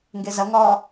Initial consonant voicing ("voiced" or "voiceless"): voiced